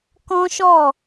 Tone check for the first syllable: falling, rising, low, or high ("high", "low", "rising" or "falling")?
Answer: high